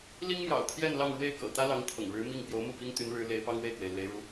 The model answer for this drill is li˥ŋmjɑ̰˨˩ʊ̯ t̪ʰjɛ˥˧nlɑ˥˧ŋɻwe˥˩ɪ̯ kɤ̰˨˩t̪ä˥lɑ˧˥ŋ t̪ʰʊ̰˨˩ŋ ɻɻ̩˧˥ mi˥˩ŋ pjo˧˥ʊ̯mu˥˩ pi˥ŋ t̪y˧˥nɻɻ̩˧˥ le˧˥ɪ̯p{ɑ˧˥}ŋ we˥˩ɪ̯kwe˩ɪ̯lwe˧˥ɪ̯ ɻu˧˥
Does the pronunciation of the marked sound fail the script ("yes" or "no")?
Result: yes